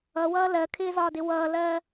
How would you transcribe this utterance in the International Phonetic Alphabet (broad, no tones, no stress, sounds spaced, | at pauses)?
ʌ w ʌː l ɜ kʰ ɪː z ɒː d ɪ w ʌː l ɜ